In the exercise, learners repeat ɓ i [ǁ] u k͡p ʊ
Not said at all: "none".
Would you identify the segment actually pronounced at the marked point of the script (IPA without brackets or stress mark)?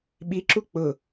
ǁ